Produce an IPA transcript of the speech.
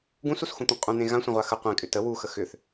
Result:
ɡũsusxũt̪ũ qʼũn̪ẽ ɣãsʷə̃ʁʷa xə qʷẽkʼʏ tə wuxə xʏθ

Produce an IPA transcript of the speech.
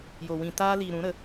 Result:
jo˨ wĩ˨taː˧liː˨ ɾũ˨˦ɾə˨˦

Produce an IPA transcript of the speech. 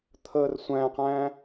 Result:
t̪ʰər sʷæ̃qæ̃

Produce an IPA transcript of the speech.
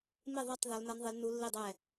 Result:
mɪ˥˨ðˤɑ˥˨tˤ ðɒ˧˥lnʌ˧˥nðˤɪ˧˥lnu˧˥ lːi˥˨dˤɛ˥˨

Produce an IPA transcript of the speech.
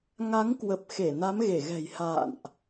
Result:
ŋa˨˦ŋkwə˨˩p̚xe˧˩ na˨˦mɣe˧˩ɣɛ̤˨˩j ha̰ː˧˨nʔ

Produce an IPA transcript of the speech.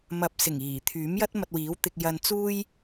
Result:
mɐ˨p̚sɪ˨˩ŋ iː˨˩t̪ʰyː˨˥mjɐ˥t̚ mɐ˧t̚wiː˨˥wt̪ɪ˧k̚jɐ˧n t͡suː˥j

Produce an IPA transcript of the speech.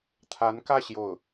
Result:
t̪ʰa˧˥nkä˥˧ ɕjo˥˩ʊ̯

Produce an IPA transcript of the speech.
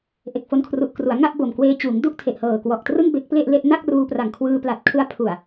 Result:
ʔe˨˩k̚fo˧nkʰru˨˩ʔkru˩˦a̯ ŋa˥˩ʔbo˨˩mkweː˧t͡ɕuː˩˦ŋ du˥˩ʔtʰe˨˩ʔhɤː˨˩ kwɔ˨˩ʔtrɯ˥˩ŋbe˦˥k̚ ple˥˩ʔle˥˩ʔ na˥˩k̚ruː˧pra˨˩ŋkʰwɯː˧ pla˨˩t̚kʰɯ˧a̯ pʰu˨˩a̯

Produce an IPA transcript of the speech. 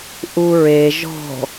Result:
ʔuɹe ʒɔ̤

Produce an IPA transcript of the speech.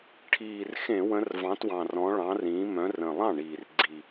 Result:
ʈʰiː˨˩r xẽ˧˩˧wə̃˨˦r vɑ̃˨˦twɑ̃˨˩ rɔ̃˨˦ɭɑ̃˨˦rĩː˨˦mœ̃˨˦ rə̃˨˩lˠɑ̃˥˩ɳiː˨˩r ɡ͡ǀi˨˩

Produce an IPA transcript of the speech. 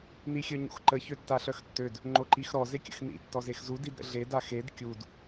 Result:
nixʲœɲo̰xǃə çøtːaɬœxtːød | ŋ͡ǃoǃixɾɔ zekʲə̰xnḭ tːɔzexzu didɾə̰ɮe daxed kʲud

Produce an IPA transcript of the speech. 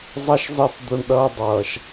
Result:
zˤʌ˦ʃzˤi˦˨p d̪o˦ɳɗʌː˦ dˤʌː˨ʃ

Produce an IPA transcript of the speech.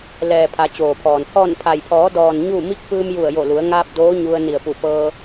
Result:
lɛː˩ pʰa˩˧t͡ɕoː˩pʰɔː˩n hɔː˧˩npʰa˩jpʰɔː˩˧dɔː˩n ɲu˥˨ mi˧˥k̚pɯː˧mju˧˩ə̯jo˧˩ lu˩˧ə̯ŋaː˧p̚ doː˧˥ɲu˧ə̯ ni˧˩ə̯pu˧˩pɤː˧

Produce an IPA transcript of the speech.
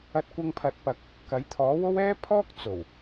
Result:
ɐ˧t̚kʷɐ˧ŋpʰɐ˨˥t̚pɐ˨k̚ | kɐ˨˥jt̪ʰɔː˨˥wo˥w ɛː˥pʰɔː˥k̚ t͡so˨˩w

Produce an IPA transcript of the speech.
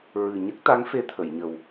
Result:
ɹɨ˨˩ ɲə˦˥k̚t̪a˧˥ŋ fe˧t̪ʰə˨˩˨j ɲə˨˩w

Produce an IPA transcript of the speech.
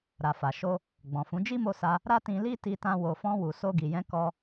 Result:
ɾa˨fa˨ ʃo˧ | ɡ͡bɔ̃˨fũ˨˦ d͡ʒi˦mo˧sa˧ | ɾa˦tĩ˧li˦ ti˧tã˧ wo˨fɔ̃˧wu˨ so˧ɡi˨ jɛ̃˧kɔ˧

